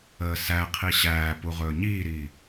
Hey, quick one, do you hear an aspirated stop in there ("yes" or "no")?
yes